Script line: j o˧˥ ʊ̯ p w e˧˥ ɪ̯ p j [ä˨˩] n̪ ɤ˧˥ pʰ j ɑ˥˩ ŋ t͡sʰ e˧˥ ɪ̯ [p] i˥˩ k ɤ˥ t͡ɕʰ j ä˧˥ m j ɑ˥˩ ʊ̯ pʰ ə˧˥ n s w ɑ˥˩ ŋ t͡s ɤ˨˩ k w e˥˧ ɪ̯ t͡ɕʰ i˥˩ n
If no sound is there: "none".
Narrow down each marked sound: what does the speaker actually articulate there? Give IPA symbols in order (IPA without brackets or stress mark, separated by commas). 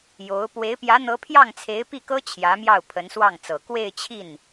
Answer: ä˧˥, p